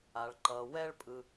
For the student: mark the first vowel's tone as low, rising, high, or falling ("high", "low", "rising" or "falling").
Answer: low